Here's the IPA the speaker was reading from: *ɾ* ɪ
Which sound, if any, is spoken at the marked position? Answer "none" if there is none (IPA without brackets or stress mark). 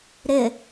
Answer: ɾ